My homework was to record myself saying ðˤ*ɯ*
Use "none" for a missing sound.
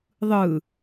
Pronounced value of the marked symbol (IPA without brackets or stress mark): ɯ